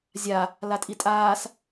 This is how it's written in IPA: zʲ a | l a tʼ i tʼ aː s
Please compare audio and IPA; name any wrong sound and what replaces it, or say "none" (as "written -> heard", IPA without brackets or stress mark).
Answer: none